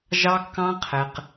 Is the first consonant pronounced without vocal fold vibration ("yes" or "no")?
no